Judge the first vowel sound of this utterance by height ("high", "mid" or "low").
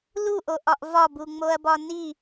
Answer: high